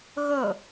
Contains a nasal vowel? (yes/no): no